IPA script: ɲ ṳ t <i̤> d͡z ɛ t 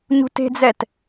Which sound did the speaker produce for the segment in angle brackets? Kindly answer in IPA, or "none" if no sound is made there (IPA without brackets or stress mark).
e̤